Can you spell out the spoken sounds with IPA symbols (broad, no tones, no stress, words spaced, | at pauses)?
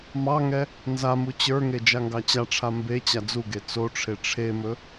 mɑŋɛ | nzamu t͡ɕə˞ŋe d͡ʒaŋɡɑt͡ɕaʈ͡ʂʰa mbe t͡ɕad͡zuɡe t͡soʈ͡ʂʰe ʈ͡ʂʰemɵ